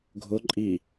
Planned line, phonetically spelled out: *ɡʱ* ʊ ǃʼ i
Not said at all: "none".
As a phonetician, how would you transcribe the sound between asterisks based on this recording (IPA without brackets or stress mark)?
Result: ɡʱ